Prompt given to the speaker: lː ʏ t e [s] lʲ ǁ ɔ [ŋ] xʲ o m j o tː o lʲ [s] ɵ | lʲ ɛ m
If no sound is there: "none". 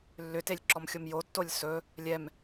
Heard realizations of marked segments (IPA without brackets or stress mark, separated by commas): none, m, s